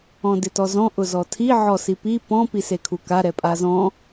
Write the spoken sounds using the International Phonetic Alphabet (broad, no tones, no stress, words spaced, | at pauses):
ɔ̃dɪtɔzɔ̃ ʔʊzɔtʰi ʕɔsipi pɔ̃ pisekʰuka ɾɛpʼazɔ̃